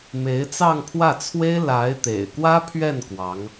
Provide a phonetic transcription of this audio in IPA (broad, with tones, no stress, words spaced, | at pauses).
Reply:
me˧˥ɪ̯t͡sɑ˥˧ŋpʰwä˥˩t͡sʰwe˥ɪ̯ la˧˥ɪ̯t̪ḛ˨˩ɪ̯kwä˥pʰɥɛ˥˩n kwɑ˧˥ŋ